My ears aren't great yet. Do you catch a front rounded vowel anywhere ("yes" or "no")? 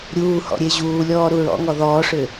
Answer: yes